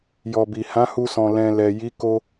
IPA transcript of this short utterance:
jɔ˨bi˨hã˨˦hu˧ sɔ̃˨lɛ̃˨ lɛ˨ji˨˦ ko˦

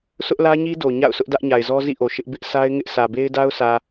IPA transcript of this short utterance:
sʰʊ˦ʔlä˦ɲi˦ do˨ɲa̰˦˨ʊ̯sʊ˦ʔ dä˦ʔɲa˨ɪ̯zɔ˦ zḭ˦˨ʔo˨ ʃɪ˦ʔ bɪ˦ʔsʰa˦ɪ̯ŋɪ˦ʔ sä˨be˦ɪ̯ da˦ʊ̯sä˨

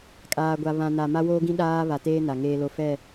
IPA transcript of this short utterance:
kʼaː˨ɡʷa˨ βã˨na˨ ma˦woː˦ɡĩ˦ ɗaː˦ βa˨teː˦ na˨ŋeː˦lo˦ fɛ˦˨

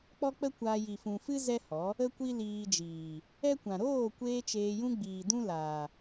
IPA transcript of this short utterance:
k͡pɔ˦k͡pə˦kʷaː˧ ji˨fũ˨fɨ˦ zɛ˦hɔ˨˦ | ə˦kʷi˦liː˧d͡ʒiː˨ | ɛ˦kʷã˨ ɾoː˦˨kʷeː˧ t͡ʃeː˧jũ˦ ɡ͡biː˨dũ˦laː˨

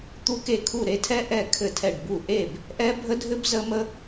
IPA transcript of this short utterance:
t̪u˦˥ke˥˩ kʰu˥˩ ɾe˥˩tʰɛ˦˥ ʔɛ˥˩ kʰɘ˥˩tʰɛ˥˩ɖbu˥˩ ʔe˥˩b | ʔɛ˦˥bʱə˦˥dʱɘ˦˥b zə˦˥mə˦˥

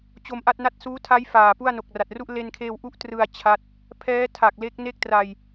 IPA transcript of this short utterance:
t͡ɕo˧mʔa˥˩t̚na˥˩t̚ suː˦˥tʰa˦˥j faː˨˩pu˥˩a̯ no˨˩k̚ra˨˩t̚ru˥˩ʔ le˧nkʰeː˧w ʔu˥˩ʔtrɯ˧a̯ t͡ɕʰa˦˥t̚ | pʰɛː˦˥tʰa˨˩k̚ le˦˥k̚ne˥˩k̚tra˧j

